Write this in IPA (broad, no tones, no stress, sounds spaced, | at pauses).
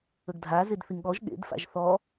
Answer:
ə ɡ dʱ a z e d θ i ŋ ɠ ɔ ʒ ɠ ḛ d f a̰ ʒ θ ɔ